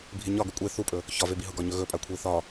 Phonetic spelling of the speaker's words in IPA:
bʱ i ɲ ɒ ɡ ʏ kʷʼ e θ u pʼ ɵ | ç ɒ v e b i ɦ ʊ ɡ ɒ ɲ ɵ ɣ ɵ pʼ a kʷʰ i θ ɒ

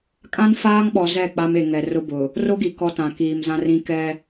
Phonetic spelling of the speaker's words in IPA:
kʼ ã˦ n f aː˦ ŋ ɓ ɔ˨ z ɛ˦˨ k͡p a˦ m e˨ ŋ ɛ˨ r ʊ˦ b ʊ˨ | r o˦ ɡ i˨ k ɔ˦ t ã˨ k iː˨ m z ã˦ r ĩ˦ k ɛ˦

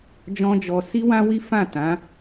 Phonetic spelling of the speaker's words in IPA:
d͡ʒ ɔ̃˦ d͡ʒ ɔ˧ s i˦ w ã˦ w i˦ f ã˦˨ t ã˨˦

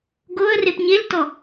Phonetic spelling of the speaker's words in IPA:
ɡ o ə̯ r e p ɲ e l t ɔ

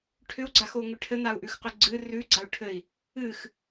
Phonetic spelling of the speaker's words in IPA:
ʈʰ ʏ u̯ ɡ͡ǀ a x o ŋ ʏ ʈʰ ɘ n̪ a u̯ ʔ ʉ x q ʏ ɡ͡ǀ ɨ r ʉ ɡ͡ǀ a u̯ ʈʰ ɘ i̯ | ɨ x

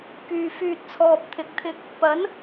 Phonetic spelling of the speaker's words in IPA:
k yː˨ f yː˨ t̚ t͡sʰ ɔː˨ p̚ t̪ʰ ɪ˨˥ k̚ t̪ʰ ɪ˧ k̚ | p ɐ˨˥ n

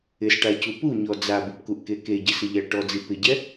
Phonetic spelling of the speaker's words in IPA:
ɪ s ʈ a c u p u ɲ ɔ d͡z a b u p k u ʔ k e k e ɟ ɪ s ɪ ʎ a ʈ ɔ d͡z i p ɪ ɟ ɛ

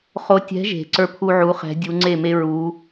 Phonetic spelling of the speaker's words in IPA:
χ o˧˥ tʲ ɛ̤˧˥ ʒ e̤˨˩˦ ǀ ə˞˥ pʰ u˥ ʕ u˧˥ χ ɛ̤˧˥ dʲ u˧˥ ŋ͡ǀ e˥˨ m e˥ ɹ u˧˥

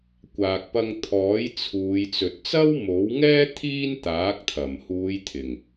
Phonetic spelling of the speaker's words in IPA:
kʷ aː˨ k̚ p ɐ˧ ŋ t̪ʰ ɔː˨˥ j t͡sʰ uː˨˧ j t͡s ɵ˨ t̚ t͡s ɐ˥ w m o˨˥ w ŋ ɛː˥ t̪ʰ iː˥ n t̪ aː˨˥ k̚ t̪ʰ ɐ˨˩ m h uː˨˧ j t̪ʰ ɪ˨˩ ŋ

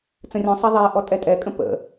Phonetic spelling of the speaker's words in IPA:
t͡s ə̃ rʲ ɔ̃ sˤ ɛ ðˤ ɛ ʔ ɔ tʼ ɛ tʼ ɛ kʼ ə̃ p ə̰

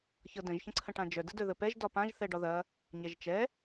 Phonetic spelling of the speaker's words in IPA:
ç ɤ d ə̃ ʒ ç ə̃ ǀʰ ə̃ ʈ ã d͡ʒ œ d ə d œ ð ə p ɛ ʒ d ɒ p ã ʒ θ ɛ ɖ ɒ ð ɐ | ɲ ɛ ʒ t͡ʃ ɛ

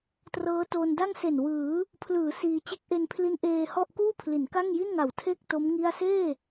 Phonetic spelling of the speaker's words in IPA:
t r ɤː˦˥ t oː˧ n d a˥˩ ŋ s e˨˩ n w ɯː˩˦ | pʰ l ɯː˩˦ s iː˧ t͡ɕ e˦˥ k̚ ʔ e˧ n pʰ l i˦˥ n ʔ eː˧ h ɔ˥˩ ʔ k uː˥˩ pʰ l i˩˦ n k a˥˩ ŋ j i˥˩ n ŋ a˨˩ w tʰ e˥˩ k̚ t o˦˥ m ŋ i˥˩ a̯ s eː˥˩

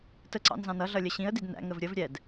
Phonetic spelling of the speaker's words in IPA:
t ə ǀ ɑ̰ n z ɑ̃ n ʌ ɮ ʌ lʲ ə ɕ ĩ ə̯ d i d n æ̰ ŋ ə v ɾʲ ə v ɾʲ ɛ d

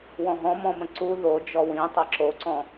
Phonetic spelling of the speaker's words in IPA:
w ɔ̃ ɦ ɔ̃ m ɔ̃ m ə̃ ǀ u ð o d͡ʒ ɔ w ĩ tˤ ɛ ǁ o ǀ ɔ̃

